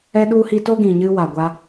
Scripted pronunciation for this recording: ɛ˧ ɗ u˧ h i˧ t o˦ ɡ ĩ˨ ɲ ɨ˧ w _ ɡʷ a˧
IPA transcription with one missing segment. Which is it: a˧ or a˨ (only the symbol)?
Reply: a˨